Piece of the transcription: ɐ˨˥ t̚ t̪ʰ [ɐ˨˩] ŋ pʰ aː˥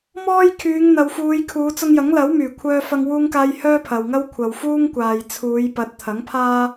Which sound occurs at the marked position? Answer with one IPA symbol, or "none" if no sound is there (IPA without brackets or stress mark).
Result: ɐ˨˥